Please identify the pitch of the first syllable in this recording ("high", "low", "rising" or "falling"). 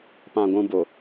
low